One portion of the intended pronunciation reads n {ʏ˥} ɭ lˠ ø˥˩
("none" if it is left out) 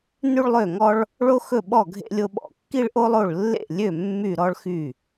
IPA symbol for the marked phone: y˥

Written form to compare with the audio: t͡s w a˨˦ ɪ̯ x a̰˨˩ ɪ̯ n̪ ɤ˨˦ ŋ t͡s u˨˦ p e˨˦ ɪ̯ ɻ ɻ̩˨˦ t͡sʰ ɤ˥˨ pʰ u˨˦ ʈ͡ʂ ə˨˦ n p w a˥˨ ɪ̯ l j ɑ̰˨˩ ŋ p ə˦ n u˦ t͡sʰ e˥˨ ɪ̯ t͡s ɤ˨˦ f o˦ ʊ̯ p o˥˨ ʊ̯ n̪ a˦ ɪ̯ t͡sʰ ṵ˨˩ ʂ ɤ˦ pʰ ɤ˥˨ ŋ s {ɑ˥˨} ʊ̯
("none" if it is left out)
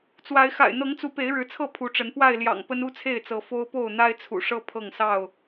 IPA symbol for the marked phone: ɑ˥˨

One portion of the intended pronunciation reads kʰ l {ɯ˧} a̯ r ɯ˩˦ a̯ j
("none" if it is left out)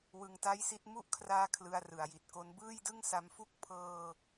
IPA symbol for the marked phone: ɯ˧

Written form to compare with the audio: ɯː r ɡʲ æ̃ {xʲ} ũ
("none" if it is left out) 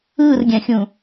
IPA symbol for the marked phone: xʲ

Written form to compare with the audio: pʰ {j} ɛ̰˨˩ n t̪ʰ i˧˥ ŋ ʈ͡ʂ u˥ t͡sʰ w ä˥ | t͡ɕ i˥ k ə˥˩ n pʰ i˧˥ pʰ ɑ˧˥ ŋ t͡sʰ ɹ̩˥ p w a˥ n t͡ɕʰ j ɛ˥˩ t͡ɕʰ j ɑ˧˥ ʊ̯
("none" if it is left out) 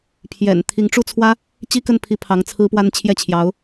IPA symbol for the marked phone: j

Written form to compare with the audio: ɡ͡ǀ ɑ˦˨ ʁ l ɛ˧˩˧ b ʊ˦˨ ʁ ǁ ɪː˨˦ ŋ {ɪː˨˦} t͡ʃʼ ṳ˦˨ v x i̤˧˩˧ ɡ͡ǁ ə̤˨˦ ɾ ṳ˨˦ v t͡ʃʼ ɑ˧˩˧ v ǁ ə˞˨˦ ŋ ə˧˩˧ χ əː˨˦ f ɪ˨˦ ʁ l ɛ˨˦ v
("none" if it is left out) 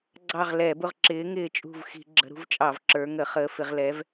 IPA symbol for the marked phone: ɪː˦˨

